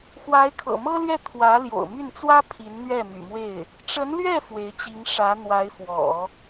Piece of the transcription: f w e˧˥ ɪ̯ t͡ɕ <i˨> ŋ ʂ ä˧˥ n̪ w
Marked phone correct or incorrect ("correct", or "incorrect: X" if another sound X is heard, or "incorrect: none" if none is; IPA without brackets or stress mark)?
incorrect: i˧˥